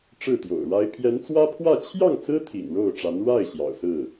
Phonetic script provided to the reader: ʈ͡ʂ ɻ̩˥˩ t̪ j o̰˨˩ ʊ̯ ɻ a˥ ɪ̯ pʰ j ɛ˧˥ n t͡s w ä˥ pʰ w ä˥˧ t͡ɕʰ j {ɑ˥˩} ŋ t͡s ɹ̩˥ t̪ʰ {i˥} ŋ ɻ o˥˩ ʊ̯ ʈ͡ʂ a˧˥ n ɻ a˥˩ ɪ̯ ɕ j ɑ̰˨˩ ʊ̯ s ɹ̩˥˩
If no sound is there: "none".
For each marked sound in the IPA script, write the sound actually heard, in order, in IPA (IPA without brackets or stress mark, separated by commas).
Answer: ɑ˥˩, ḭ˨˩